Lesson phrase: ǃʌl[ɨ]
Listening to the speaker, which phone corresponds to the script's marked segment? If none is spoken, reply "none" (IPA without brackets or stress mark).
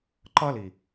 i